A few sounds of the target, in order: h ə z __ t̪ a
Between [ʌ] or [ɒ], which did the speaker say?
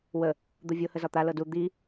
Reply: ɒ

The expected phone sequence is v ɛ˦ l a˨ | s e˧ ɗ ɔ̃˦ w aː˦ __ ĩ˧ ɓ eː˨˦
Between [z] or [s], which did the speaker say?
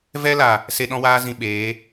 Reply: z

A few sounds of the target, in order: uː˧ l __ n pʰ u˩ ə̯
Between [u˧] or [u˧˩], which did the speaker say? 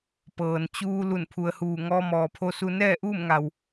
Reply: u˧˩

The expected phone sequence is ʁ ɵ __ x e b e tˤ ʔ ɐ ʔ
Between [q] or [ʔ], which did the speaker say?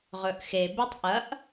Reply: ʔ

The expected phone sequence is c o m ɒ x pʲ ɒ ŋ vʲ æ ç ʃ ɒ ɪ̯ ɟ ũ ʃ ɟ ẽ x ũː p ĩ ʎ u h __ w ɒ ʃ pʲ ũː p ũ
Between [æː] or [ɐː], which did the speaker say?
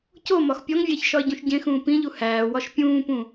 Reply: æː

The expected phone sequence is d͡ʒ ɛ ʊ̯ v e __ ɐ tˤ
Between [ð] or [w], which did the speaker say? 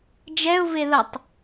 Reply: ð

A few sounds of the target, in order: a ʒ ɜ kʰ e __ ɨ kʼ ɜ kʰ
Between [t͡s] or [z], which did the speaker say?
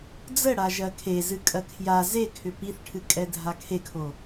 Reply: z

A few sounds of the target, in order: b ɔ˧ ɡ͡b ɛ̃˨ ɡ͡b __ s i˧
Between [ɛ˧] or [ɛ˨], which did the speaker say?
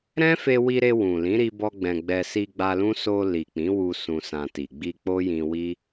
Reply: ɛ˧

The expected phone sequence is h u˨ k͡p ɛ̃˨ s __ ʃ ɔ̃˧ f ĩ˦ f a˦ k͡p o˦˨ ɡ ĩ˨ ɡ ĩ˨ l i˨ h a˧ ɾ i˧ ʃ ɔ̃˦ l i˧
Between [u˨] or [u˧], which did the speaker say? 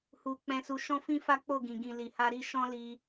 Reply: u˨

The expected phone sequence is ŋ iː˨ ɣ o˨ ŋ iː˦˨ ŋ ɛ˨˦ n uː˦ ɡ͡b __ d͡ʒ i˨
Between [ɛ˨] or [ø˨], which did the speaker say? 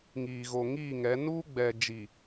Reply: ɛ˨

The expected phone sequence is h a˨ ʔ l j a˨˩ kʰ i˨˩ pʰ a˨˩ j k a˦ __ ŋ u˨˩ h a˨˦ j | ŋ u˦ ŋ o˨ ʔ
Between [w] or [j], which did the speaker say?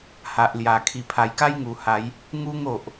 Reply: j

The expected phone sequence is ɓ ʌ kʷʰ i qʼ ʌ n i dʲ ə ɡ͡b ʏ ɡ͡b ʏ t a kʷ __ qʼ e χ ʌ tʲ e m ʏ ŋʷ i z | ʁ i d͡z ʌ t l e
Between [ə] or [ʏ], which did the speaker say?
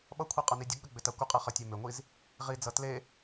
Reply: ə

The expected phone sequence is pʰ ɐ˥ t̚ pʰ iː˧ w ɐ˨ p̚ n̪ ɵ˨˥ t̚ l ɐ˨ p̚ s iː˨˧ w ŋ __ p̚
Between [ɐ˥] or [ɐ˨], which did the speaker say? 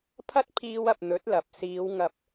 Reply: ɐ˨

